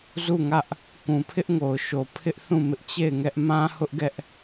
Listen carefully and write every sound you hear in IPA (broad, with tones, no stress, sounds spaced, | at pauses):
z u˦˨ ŋ ä˦ ʔ | k ũ˨ pʰ ɪ˦ ʔ ŋ o˨ ʊ̯ ʃ o˨ pʰ ɪ˦ ʔ θ ũ˦˨ m ɪ˦ ʔ t͡ɕ e˦˨ ɪ̯ ŋ ɛ˦ ʔ m ã˦ h ʊ˦ ʔ ɡ ɛ˦ ʔ